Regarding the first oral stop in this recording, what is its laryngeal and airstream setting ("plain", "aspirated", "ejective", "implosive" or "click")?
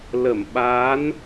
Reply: implosive